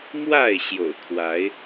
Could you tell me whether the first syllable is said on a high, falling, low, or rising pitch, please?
falling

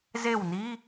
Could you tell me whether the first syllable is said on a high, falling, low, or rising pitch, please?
falling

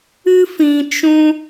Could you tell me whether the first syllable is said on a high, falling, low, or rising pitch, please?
high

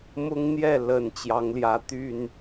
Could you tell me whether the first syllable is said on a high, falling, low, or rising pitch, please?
high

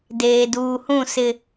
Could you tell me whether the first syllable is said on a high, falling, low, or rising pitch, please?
low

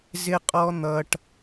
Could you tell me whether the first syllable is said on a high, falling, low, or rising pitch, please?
high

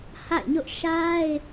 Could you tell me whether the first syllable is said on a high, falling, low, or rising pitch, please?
falling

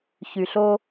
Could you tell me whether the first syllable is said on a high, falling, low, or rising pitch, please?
low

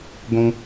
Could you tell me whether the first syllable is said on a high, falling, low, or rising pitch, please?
high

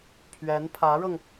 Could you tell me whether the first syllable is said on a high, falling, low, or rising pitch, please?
rising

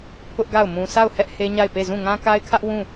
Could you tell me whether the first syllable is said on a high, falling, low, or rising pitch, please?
high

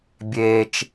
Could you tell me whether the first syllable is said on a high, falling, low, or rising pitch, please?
low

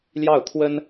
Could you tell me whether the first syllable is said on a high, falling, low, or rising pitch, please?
falling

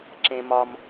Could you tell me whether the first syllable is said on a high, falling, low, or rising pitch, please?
high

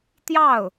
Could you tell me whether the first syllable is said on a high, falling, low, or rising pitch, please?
falling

